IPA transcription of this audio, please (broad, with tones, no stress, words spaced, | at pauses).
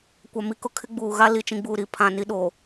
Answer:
kʷa˨mi˨kʊ˦ kʰɪ˦ɡ͡buː˨ɣa˦ li˨t͡ʃĩ˨ɡ͡buː˨ɾi˨ pʰã˨ ni˦ɗoː˨